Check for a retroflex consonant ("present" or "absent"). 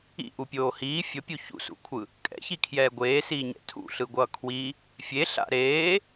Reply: absent